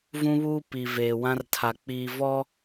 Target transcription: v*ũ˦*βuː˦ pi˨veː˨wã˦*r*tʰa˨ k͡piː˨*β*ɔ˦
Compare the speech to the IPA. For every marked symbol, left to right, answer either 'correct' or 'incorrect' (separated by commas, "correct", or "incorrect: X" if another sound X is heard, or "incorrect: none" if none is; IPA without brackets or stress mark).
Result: correct, correct, incorrect: v